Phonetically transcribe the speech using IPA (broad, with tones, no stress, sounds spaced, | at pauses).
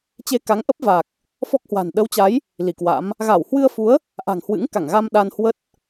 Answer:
t͡ɕ e˧ k a˨˦ ŋ ʔ ə˦˥ p̚ v a˨˩ k̚ | f ɔ˦˥ k̚ h w a̤˨˩ n ɗ ə˨˦ w t͡ɕ a˨˦ j | l i˧˩ k w a̰˧˥ m | ɣ a˧˩ w h w ɨ˧ ə̯ f u˨˦ ə̯ | ʔ a̤˨˩ ŋ h w ɨ̰˧˥ ŋ k a˧˩ ŋ ɣ a˧ m ɗ a˧ n h w ə˦˥ t̚